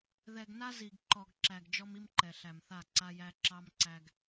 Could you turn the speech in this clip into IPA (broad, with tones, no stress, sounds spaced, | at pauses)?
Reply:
ð ɛ˨ ɡ n a˦ z i˨ ɡ ǃ ɔ˨ ɡ ǁ æ˨ ɡ d͡ʒ ɔ˦ m i˦ m ǃ ɛ˨ ɬ æ˨ m θ a˦˨ ǀ a˦ j æ˦ ǁ ɑ˦ m ǀ æ˦ ɡ